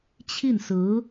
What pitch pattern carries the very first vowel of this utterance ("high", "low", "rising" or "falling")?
falling